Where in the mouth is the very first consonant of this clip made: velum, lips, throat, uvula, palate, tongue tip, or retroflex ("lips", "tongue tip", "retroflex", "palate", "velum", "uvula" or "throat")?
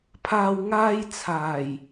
lips